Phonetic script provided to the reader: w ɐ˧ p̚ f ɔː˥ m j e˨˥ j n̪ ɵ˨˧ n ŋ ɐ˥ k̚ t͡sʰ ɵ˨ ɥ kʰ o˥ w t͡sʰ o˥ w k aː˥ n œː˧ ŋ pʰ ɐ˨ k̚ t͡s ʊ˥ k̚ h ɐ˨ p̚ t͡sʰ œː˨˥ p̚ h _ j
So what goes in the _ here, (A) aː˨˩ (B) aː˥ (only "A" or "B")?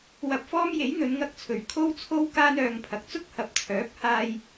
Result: B